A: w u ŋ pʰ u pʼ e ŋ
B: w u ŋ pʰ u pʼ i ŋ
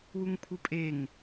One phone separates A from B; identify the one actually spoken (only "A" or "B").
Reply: A